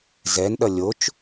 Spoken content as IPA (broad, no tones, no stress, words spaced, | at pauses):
zɛnɗʌ lʲot͡ʃ